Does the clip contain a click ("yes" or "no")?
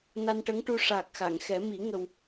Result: no